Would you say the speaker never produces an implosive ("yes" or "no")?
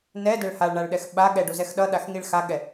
no